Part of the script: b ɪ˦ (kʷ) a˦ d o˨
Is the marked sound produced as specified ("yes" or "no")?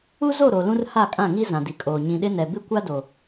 yes